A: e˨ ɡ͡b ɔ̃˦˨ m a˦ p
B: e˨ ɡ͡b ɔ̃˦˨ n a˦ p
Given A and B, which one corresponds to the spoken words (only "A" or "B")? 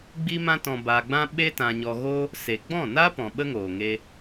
B